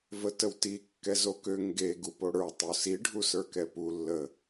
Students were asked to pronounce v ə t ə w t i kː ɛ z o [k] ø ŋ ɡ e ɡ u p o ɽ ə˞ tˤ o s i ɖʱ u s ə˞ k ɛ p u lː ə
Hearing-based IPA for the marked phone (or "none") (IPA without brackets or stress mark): k